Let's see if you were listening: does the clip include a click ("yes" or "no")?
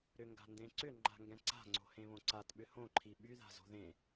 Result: yes